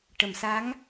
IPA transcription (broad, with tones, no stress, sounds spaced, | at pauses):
ʈ ə˨˩˨ m s a˧˥ ŋ